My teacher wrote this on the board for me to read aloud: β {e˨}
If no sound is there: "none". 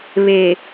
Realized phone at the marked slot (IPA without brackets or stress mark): e˨